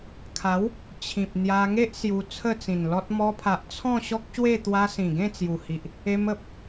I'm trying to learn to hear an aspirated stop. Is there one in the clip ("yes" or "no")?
yes